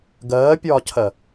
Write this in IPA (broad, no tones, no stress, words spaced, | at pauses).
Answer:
ɡɜːpʲɒːcʰɜ